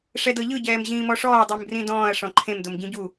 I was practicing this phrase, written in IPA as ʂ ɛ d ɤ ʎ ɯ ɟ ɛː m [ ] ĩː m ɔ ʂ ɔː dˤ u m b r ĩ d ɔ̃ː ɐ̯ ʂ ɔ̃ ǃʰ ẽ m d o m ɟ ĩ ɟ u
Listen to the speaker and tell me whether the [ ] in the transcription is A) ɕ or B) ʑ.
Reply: B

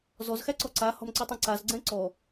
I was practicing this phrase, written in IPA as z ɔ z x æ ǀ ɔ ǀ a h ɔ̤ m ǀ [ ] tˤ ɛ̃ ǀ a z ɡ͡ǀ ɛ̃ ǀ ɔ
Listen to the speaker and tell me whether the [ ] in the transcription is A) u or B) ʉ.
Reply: B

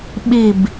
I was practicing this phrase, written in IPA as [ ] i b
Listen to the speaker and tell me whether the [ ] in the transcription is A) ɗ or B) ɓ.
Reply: B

